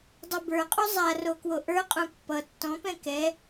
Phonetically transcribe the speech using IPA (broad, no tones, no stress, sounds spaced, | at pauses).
dˤ u b ə˞ qʼ u zˤ a r o k w o ʔ ə˞ qʼ ũ pː ʌ tː ɔ̃ p ɛ̃ k ɛ